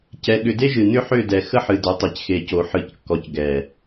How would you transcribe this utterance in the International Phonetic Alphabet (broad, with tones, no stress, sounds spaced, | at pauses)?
c ɛ˧ ɠ ʏ˧ d e˦ ʒ ɨ˨ n ʏ˦ ħ ʏ˦˨ d ɛ˨ x ə˦ ħ ɨ˨ d ʏ˨˦ tˤ e˨ c x e˨ c o˨ ħ ɨ˨˦ c kː ɔ˨ c ɡ ɛ˨